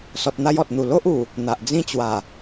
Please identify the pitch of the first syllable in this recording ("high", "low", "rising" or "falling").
low